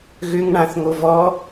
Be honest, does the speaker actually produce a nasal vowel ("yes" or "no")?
yes